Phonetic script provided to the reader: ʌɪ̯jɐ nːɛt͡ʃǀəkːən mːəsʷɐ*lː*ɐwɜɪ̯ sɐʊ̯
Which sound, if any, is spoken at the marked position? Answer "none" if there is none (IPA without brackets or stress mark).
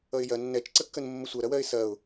ɾ